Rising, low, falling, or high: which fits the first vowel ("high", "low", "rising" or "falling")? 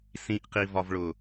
low